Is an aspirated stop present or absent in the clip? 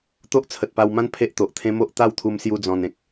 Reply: present